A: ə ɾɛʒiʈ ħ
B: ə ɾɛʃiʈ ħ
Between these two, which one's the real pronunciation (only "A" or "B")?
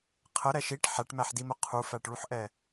B